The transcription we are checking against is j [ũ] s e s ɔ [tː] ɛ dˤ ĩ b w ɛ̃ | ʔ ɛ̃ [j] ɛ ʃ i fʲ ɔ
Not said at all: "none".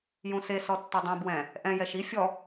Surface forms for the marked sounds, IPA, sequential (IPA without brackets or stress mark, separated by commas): ũ, tː, j